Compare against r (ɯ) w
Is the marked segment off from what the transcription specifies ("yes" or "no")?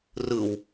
no